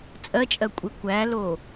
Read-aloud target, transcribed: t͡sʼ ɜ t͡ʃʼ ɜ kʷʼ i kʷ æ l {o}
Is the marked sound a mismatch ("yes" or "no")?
no